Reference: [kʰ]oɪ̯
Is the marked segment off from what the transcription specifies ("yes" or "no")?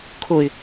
no